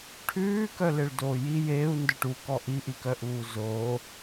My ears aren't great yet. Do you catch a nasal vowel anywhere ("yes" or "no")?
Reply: no